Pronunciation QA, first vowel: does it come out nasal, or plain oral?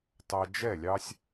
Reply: oral